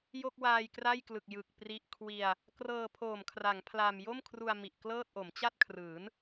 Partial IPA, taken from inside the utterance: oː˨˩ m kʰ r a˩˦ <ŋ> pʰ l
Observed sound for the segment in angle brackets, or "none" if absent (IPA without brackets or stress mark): ŋ